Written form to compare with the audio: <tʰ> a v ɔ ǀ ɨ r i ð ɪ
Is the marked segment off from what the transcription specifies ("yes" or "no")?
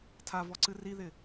no